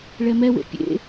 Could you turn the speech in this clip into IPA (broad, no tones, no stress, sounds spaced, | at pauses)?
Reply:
ɭ ɛ m ɛ w ḛ pʲ ḛ